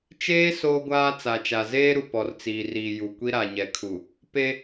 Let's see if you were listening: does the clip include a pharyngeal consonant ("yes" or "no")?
no